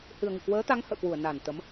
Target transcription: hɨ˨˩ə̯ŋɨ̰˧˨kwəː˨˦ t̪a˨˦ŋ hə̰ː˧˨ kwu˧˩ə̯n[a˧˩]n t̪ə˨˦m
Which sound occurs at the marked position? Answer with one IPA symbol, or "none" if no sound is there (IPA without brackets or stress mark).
a˧˩